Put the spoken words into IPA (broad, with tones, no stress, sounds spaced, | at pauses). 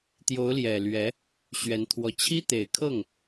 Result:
t̪ j o˧˥ ʊ̯ l j ɛ˨˩ l ɥ ɛ˧˥ | ɕ ɥ ɛ˧˥ n t̪ʰ w ɔ˧˥ t͡ɕʰ i˥ t̪ e˨˩ ɪ̯ kʰ ɤ˥˩ ŋ